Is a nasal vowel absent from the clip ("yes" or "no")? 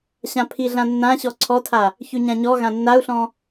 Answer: no